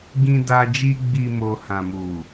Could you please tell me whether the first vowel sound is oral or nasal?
nasal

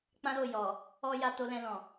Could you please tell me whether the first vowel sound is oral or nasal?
nasal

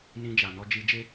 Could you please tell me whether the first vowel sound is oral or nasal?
nasal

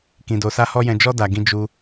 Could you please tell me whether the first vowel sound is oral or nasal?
nasal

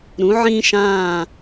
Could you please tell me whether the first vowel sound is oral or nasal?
nasal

